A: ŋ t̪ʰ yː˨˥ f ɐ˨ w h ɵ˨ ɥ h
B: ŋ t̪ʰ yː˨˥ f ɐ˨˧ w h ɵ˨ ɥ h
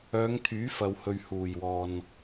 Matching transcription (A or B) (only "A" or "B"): A